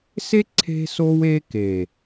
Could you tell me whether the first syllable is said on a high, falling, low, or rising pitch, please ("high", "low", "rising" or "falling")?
high